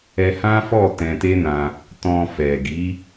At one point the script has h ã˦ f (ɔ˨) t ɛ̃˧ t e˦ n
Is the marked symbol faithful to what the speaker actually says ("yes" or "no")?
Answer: no